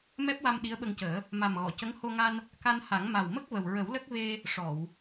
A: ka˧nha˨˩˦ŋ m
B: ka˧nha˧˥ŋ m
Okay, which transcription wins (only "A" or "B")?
A